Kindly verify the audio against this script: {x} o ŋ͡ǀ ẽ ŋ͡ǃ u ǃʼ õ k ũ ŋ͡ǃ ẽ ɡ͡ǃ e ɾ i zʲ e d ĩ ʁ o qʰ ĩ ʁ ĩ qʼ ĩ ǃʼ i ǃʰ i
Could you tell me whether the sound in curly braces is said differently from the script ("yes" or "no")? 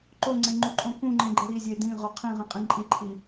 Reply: yes